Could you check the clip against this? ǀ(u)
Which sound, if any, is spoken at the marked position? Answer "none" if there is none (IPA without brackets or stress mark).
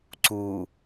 u